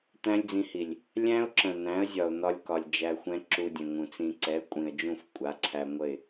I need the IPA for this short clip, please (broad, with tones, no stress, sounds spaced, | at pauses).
t̪ æ̃˦ lʲ d͡z ĩ˧ h i˨ lʲ | lʲ æ̃˦ ʊ̯ ǁ ə̃˨ n̪ æ̃˨˦ ə̯ zʲ ɒ˨ ʊ̯ n̪ ɒ˧ lʲ k ɒ˨ lʲ d͡ʒ æ˧ xʷ ɛ̃˦ ǁ u˧ dʲ ə̃˨ ŋ ũ˨ t͡s ĩ˧ ǀ ɛ˨˦ kʷʼ ĩ˨ ə̯ d͡ʒ ũ˦˨ f kʷʼ a˨˦ ǀʰ æ˧ ŋʷ ə˦˨ ɪ̯